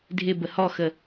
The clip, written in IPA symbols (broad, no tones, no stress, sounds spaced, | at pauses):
dʱ ɪ b ə h ɔ x ə